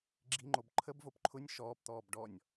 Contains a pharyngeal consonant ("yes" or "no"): no